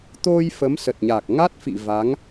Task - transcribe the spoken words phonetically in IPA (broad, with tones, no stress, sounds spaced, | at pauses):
t̪ o˧ j f ə˨˦ m s ə˨˩ t̚ ɲ a˨˩ k̚ ŋ a˦˥ t̚ f ḭ˧˨ v a˨˦ ŋ